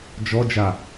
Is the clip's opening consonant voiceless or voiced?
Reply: voiced